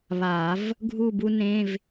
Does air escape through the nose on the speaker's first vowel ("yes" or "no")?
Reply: no